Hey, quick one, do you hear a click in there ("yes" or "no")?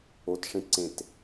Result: yes